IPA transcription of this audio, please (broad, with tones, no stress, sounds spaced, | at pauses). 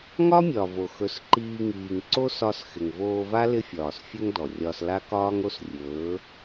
ŋ ɒ˦ mʲ ɒ˨ v o˨ x ɵ˨˦ s ǃ iː˧ ŋ iː˨ ŋ ǀ o˦ s ɒ˧ s x ɪ˨ ŋ v oː˧ v a˦ l ɪ˦ fʲ ɒː˨ s fʲ ɵ˦ ŋ d ɔ˨ rʲ ɒ˧ s l a˦ k ɒː˦ ŋ o˦ s rʲ ɵː˨˦